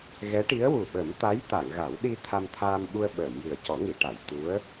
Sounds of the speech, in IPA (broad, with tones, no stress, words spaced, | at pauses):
ɣɛ˧˥ʈi˧˥ə̯ wu˨˩ɓə˨˩˦m t̪a˧˥j t̪a˨˩˨ŋɣa˨˩˦wɗi˧ t̪ʰa˧mt̪ʰaː˧m ɓu˧ə̯ɓəː˨˩˨m jɨ˨˩ə̯cɔ˨˩˦ŋi˨˩˨ʈa˨˩˨j t̪u˧˥ə̯